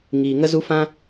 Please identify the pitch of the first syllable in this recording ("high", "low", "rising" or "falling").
low